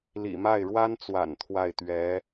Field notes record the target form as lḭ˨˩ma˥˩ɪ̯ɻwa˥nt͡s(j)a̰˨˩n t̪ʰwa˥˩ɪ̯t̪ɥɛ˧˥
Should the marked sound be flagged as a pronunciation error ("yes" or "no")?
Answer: yes